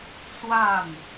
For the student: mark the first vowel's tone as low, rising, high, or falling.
falling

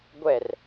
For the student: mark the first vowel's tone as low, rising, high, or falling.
falling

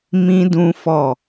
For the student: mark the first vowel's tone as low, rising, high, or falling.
high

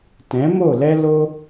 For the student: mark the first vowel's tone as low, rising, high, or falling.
rising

